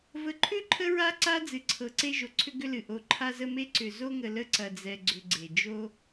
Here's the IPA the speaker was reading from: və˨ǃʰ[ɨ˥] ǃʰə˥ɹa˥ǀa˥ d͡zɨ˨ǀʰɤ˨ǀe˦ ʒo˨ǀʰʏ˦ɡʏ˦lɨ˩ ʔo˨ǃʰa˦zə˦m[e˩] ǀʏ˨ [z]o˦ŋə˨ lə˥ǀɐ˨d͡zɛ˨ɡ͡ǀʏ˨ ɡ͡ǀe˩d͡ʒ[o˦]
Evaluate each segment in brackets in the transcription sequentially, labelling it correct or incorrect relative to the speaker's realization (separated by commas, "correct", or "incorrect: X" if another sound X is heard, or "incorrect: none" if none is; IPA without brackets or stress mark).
incorrect: ʏ˥, incorrect: e˥, correct, correct